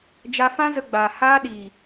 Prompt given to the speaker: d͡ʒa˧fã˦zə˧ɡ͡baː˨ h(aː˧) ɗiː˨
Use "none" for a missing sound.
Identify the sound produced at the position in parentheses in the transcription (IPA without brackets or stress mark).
aː˧